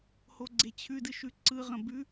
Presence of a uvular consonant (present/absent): present